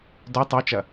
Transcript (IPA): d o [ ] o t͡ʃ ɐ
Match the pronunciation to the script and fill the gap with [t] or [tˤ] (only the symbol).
tˤ